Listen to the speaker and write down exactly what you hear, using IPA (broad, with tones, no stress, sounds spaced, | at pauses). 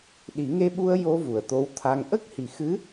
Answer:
ɗ i˨˩˦ ŋ e˧ ɓ u˧ ə̯ j o˧ v u˨˩ ə̯ t̪ o˧˥ w t̪ʰ a˧ ŋ ʔ ə˦˥ k̚ h i˨˩ x ɨ˧˥